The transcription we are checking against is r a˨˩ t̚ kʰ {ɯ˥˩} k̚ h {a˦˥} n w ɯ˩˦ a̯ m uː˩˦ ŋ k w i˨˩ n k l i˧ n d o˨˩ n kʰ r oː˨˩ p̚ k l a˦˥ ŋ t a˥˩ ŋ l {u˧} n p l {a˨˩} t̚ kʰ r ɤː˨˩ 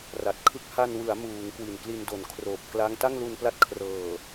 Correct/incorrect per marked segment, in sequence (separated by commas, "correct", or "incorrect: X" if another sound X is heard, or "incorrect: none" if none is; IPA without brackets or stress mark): incorrect: ɯ˦˥, incorrect: a˧, correct, incorrect: a˦˥